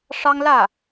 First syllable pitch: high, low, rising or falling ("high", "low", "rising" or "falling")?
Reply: high